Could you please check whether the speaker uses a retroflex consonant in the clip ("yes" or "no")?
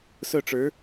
yes